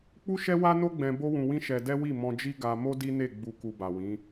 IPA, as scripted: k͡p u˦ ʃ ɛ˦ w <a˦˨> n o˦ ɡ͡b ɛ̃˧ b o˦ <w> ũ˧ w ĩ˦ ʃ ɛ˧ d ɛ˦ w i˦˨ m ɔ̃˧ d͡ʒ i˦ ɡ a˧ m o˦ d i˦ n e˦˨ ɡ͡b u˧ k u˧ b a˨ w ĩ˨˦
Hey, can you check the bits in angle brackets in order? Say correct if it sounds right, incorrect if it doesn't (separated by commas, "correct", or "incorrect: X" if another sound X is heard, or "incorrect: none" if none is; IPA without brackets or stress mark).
incorrect: a˦, correct